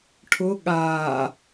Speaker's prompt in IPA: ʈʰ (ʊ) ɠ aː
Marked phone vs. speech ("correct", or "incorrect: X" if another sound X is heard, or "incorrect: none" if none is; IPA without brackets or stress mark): correct